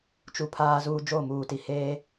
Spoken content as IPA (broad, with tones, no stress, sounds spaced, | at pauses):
t͡ʃ u˨ pʰ aː˦ z uː˦ d͡ʒ o˦˨ m uː˨ t i˨ h eː˦